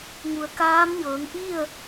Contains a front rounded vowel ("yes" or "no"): no